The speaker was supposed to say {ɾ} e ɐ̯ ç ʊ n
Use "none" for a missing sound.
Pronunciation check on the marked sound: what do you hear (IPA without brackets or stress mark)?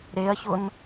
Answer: ɾ